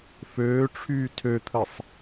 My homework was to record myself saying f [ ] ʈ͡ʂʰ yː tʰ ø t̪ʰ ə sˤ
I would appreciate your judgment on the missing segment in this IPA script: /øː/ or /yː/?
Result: øː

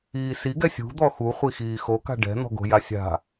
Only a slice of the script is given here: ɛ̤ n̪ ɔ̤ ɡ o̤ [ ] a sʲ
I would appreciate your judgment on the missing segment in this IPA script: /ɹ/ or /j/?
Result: j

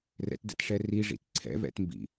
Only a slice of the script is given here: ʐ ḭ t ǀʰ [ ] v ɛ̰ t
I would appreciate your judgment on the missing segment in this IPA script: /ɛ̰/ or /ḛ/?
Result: ɛ̰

